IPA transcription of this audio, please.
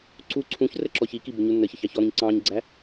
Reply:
ǀ u ǀʰ ũ ç r ə ǁ ɔ ç i k i b ʊ ɲ u nː ə ç ə ç ɑ ç ɔ ɾ ũ ɲ ǀ ɑ̃ ɲ ɡ͡ǀ æ

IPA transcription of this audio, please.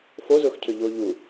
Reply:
f o z ʊː x cʰ ø ʎ oː ʎ u

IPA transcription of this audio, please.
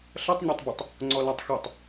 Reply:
ɬ ʌ tˤ ɲ ɔ tˤ b ɯ tˤ | ŋ͡ǀ ɔ l a tˤ x ɯ tˤ

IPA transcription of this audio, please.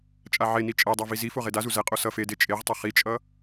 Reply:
t͡ʃʼ a ʕ e n i t͡ʃʼ ɛ dˤ a v i z i f o ʁ e d a z u z ɛ qʼ o s ʌ f e d e t͡ʃʼ e ʁ tˤ ʌ χ i t͡ʃʼ ʌ

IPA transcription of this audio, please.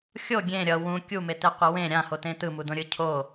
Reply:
xʲ o ɡʲ ẽ ɾʲ ʌ w ũ kʲ u m e t e qʷ ʌ w ẽ ɾʲ ã h o t ẽ t ɯ m u d õ ɾʲ ɯ cʰ o

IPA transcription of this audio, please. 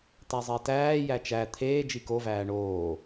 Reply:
t æ zˤ e t æː j æ t͡ʃ æ t̪ʰ eː d͡ʒ i k o v æː ɳ oː

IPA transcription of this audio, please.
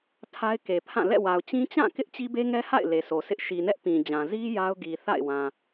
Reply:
tʰ a˦ ɪ̯ k e˨ pʰ ã˦˨ l ɛ̰˦˨ w a˨ ʊ̯ t͡ɕ ĩ˦ t͡ɕ ã˦˨ k ɪ˦ ʔ t͡ɕ i˦ b e˦ ŋ ɛ˦ h a̰˦˨ ɪ̯ l e˨ sʰ o˨ sʰ ɪ˦ ʔ ʃ i˨ n ɛ˦ ʔ p ĩ˨ d͡ʑ ã˨ z i˦ j a˦ ʊ̯ ɡ i˨ θ a̰˦˨ ɪ̯ w ã˨

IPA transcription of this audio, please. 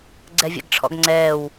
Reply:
ɡ͡ǀ ɛ vʲ ɛ̰ ɡ ʈ͡ʂʰ ɔ̰ ɡ ŋ͡ǀ ɛː w

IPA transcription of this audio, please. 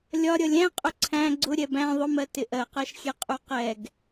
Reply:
lʲ ɒ ɾʲ ʌ lʲ æ̃ qʼ ʊ ǀʰ æ̃ ɡ͡ǀ ʊ ɾʲ ɛ b æ̃ ðˤ ʊ m ɜ t ɪ ʔ ɜ q ɜ ʃ xʲ ɛ qʼ u q ɛ ɡ

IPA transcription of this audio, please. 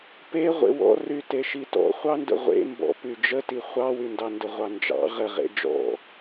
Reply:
p e ʁʷ ḛ w ɔ̰ r y t e ʃ i t ɔ̰ χʷ ɑ n d ə̰ ʁʷ ḛ m b ɔ̰ p y d͡ʒ ə t i χʷ ɑ w y n d ɑ n d ə ʁʷ ɑ n d͡ʒ ɑ̰ ʁ ə ʁ ḛ d͡ʒ ɔ̰

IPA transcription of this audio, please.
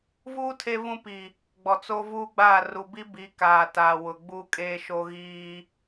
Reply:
v uː˦ tʰ e˦ v ũ˦ p i˨ | ɡ͡b ɔ˨ t͡s o˦ v uː˦ ɡ͡b aː˦˨ r u˨ b i˦ b i˨˦ k aː˨ t a˨ w ʊ˨ ɡ͡b uː˦ kʼ eː˦ ʃ o˦ ɣ iː˦

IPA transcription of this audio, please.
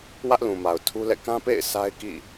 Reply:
w ä˦ ʔ l ũ˨ m a˨ ʊ̯ tʰ u˦ l ɛ̰˦˨ k ã˦ p ḛ˦˨ ɪ̯ s a˦ ɪ̯ k ḭ˦˨

